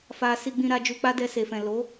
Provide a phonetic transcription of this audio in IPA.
f a˧ s i˧ ɡ͡b ĩ˧ ɾ a˧ d͡ʒ u˧ k͡p a˦ d ɛ˧ s e˨ f ɛ̃˨ l o˨˦

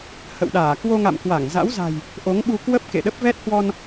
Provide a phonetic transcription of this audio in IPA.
h ə̰˧˨ w ɗ aː˧˩ k w o˧ ŋ a̰˧˨ m k w a˧˩ ŋ z a̰˧˥ w z a̤˨˩ j | ʔ o˨˦ ŋ ɓ u˧ k w ə˦˥ p̚ k ḛ˧˨ ɗ ə˦˥ p̚ v ɛ˦˥ t̚ h w ɔ˧ n

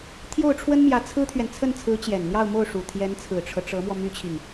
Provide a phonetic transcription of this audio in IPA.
t̪ʰ j o˥˩ ʊ̯ ʈ͡ʂʰ w ə˥ n m j ä˧˥ t͡sʰ ɹ̩˥ t̪ʰ ɥ ɛ˨ n t͡sʰ ə˥˩ n t͡sʰ ɹ̩˧˥ t͡ɕ j ɛ˨˩ n n̪ j ɑ˥˧ ʊ̯ m o˥˩ ʊ̯ ʂ u˨˩ t̪ʰ j ɛ˧˥ n t͡sʰ ɹ̩˨˩ ʈ͡ʂʰ ɤ˦ ʈ͡ʂ ɤ˧˥ m w ɔ˧ m y˥ t͡ɕʰ i˨ ŋ

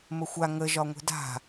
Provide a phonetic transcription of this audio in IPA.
m ə xʷ a ŋ ə ʒ ɒ ŋʷ e̤ d a̤

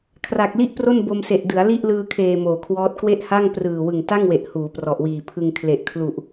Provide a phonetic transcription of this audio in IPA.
kʰ r a˨˩ k̚ l i˥˩ ʔ p r o˥˩ n b o˧ m s e˨˩ ʔ d ɯ˩˦ a̯ l i˥˩ ʔ l ɯː˧ kʰ eː˨˩ m oː˨˩ kʰ w ɔː˦˥ t̚ k w e˥˩ ʔ h a˥˩ ŋ p r ɯː˨˩ w ɯ˨˩ ŋ t a˥˩ ŋ w e˨˩ ʔ h uː˩˦ p r ɔ˨˩ ʔ w iː˨˩ pʰ ɯ˧ ŋ kʰ l e˨˩ ʔ kʰ l u˨˩ ʔ

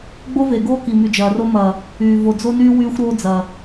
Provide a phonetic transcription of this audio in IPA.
ɡ͡b o˦ v e˨ ɡ oː˦ k i˨ m y˨ d͡ʒ ɐː˨ r o˦ m ɐː˨ | yː˨ v o˨ d͡z o˦ n yː˦ w yː˦ xʷ ɾ oː˦ d͡z ɐː˨

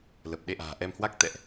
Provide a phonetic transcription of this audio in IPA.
l ə˨˩ p̚ ɗ e˧ ʔ a̤ː˨˩ ʔ ɛ˧ m h w a˦˥ k̚ t̪ ɛ̰˧˨ ʔ

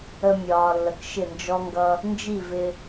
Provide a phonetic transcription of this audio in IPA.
ə˧ mʲ ɒː˨ lː ə˨ k ʃ ɪ˦˨ n d͡ʒ ɔ˦ ŋ ɡ ʌ˦ | n d͡ʒ i˦˨ v ɪ˧

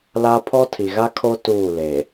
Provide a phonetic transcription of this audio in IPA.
l a˦ pʰ ɔ˦ tʰ i˨ ɣ a˦ kʰ o˦ t uː˦˨ l eː˨

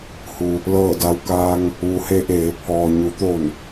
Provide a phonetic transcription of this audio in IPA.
h u˩ | l ɤː˧˩ d a˧ w k aː˧ ŋ | ʋ u˩˧ h e˧ ʔ eː˩˧ pʰ ɔː˩ ɲ u˩˧ t̪ o˧˩ n

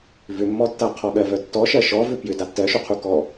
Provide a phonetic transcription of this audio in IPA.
v ʏ mː ɔ tː a qʰ ɔ ɠ ɜ v œ tː ɔ ʃ ɜ ʃ ɔ v ʏ p j ʏ d a tː ɜ ʃ u qʰ u k ɔ

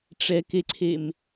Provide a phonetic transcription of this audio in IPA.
ʈ͡ʂ ɛ k e ǀʰ e m

